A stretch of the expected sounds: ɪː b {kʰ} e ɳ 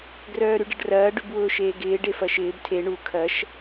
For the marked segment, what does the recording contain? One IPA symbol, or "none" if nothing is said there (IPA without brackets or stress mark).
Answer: tʰ